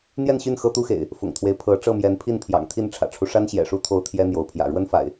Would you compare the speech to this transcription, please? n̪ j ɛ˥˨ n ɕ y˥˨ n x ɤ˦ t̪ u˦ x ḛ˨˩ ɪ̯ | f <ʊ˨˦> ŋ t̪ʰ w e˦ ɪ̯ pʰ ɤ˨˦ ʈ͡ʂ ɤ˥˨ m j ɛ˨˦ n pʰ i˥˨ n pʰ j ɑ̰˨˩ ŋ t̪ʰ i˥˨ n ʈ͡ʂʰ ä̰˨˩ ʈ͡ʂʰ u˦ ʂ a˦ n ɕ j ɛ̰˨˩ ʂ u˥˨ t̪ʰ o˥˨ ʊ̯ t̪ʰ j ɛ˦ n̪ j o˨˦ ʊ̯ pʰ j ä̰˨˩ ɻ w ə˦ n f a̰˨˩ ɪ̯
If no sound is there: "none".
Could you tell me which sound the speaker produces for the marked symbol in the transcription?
ʊ̰˨˩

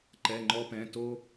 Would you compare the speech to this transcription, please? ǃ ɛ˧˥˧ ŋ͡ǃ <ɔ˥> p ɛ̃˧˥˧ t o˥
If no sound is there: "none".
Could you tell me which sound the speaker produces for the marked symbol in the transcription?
ɔ˥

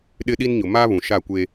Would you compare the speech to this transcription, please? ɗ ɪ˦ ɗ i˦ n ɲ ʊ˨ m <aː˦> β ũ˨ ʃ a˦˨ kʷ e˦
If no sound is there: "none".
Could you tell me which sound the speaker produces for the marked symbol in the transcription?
aː˦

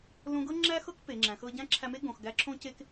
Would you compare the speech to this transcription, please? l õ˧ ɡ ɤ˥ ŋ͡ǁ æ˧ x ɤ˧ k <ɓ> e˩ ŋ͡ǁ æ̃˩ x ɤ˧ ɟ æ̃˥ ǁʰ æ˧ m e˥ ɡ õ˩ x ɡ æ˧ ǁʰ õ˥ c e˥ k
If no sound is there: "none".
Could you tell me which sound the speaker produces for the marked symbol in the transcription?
p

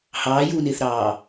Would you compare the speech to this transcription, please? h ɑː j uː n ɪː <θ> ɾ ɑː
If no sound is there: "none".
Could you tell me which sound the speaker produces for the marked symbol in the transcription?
θ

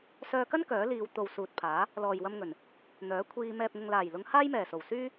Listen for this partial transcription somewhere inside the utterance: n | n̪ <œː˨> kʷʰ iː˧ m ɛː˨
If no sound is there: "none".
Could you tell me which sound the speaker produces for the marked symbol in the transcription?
œː˨˥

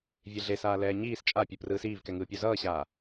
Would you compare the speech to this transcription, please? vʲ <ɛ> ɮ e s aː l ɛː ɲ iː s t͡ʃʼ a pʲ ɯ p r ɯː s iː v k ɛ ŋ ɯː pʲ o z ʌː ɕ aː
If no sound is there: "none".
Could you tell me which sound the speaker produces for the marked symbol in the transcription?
e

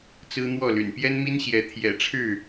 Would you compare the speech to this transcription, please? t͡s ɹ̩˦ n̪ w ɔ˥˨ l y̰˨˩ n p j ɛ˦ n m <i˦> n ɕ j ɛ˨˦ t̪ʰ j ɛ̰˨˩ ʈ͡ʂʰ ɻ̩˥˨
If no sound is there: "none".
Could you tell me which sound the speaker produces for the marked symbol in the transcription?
i˦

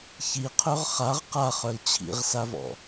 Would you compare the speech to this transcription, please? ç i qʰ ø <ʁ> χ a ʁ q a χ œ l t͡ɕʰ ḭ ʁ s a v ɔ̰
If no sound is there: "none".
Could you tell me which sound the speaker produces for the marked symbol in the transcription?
ʁ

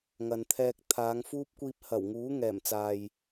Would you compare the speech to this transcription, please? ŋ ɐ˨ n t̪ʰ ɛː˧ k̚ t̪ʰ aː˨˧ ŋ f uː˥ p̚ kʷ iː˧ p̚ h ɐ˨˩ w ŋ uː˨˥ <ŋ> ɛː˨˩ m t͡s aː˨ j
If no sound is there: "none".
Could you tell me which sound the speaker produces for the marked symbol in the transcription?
ŋ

